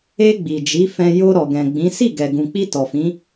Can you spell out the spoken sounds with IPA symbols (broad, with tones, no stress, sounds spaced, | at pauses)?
e˧ ɡ͡b i˨ d͡ʒ i˨˦ f ɛ̃˧ j o˧ ɾ ɔ˨ ɡ ɛ̃˨ ɡ͡b ĩ˨˦ s i˦˨ ɡ ɛ˨ ɡ ũ˨ k͡p i˧ t ɔ˨ f ĩ˨˦